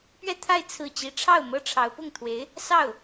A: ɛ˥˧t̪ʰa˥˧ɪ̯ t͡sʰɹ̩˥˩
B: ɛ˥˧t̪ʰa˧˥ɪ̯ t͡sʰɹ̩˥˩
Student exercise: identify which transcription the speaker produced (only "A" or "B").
A